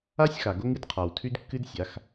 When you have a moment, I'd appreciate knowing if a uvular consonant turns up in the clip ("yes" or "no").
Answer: yes